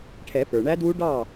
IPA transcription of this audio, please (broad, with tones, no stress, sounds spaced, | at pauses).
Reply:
ʈʰ ɛ˨˩˦ p ə˞˩ ɳ æ˦˥ d w u˦˥ ɖ ɑ˥˩